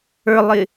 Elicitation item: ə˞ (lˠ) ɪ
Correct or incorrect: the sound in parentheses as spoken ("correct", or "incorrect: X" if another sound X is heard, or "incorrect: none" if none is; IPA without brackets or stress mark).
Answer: correct